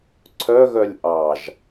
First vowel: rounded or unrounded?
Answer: rounded